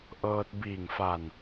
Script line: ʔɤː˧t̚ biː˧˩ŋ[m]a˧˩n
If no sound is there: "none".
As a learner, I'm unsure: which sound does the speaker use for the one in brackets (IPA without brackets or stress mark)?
f